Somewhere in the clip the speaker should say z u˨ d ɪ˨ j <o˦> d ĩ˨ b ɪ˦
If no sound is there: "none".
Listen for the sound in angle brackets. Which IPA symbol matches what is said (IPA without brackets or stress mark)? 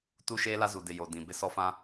o˨